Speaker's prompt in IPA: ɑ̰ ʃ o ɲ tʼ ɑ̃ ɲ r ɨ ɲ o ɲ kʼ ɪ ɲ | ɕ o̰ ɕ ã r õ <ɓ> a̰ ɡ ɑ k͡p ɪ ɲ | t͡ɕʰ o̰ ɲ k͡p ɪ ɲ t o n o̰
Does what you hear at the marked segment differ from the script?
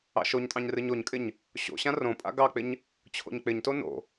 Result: yes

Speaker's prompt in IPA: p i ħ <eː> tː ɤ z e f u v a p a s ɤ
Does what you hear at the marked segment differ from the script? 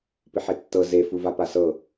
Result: yes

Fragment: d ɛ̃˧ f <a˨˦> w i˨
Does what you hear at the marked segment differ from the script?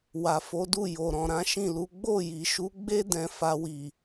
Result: yes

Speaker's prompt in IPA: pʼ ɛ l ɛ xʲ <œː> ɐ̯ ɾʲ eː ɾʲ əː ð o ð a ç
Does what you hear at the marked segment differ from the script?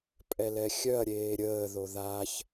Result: yes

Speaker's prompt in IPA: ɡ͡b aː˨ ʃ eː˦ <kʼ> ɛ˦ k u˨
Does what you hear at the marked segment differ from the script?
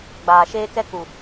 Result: yes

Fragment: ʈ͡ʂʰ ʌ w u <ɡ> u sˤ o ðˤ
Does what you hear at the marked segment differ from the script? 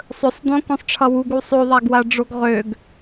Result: no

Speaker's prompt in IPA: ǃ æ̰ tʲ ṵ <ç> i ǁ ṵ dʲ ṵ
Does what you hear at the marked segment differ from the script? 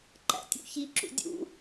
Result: no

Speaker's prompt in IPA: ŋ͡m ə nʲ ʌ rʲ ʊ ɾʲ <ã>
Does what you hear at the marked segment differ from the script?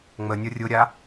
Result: yes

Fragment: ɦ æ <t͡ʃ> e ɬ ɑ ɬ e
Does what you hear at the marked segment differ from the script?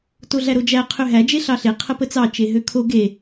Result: yes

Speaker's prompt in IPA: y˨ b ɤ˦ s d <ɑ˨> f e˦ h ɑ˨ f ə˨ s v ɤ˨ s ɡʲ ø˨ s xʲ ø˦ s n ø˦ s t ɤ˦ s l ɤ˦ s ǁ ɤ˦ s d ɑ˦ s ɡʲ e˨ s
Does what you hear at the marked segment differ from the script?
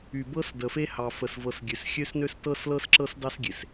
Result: yes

